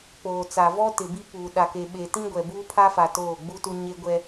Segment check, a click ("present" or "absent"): absent